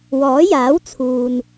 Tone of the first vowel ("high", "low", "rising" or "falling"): rising